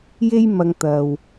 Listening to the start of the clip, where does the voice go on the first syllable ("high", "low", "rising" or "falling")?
high